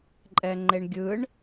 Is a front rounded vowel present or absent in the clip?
absent